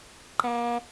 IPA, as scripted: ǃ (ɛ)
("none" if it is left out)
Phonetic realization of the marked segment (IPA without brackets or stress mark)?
æ